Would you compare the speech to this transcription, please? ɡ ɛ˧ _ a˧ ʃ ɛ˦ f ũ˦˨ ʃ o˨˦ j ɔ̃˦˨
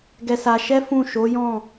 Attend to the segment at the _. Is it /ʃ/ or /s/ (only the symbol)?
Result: s